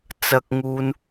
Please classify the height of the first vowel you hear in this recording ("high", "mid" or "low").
low